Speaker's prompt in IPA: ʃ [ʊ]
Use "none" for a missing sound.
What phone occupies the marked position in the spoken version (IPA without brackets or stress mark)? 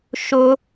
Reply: ʊ